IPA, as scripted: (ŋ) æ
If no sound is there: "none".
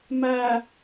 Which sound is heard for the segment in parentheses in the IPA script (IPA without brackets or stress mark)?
m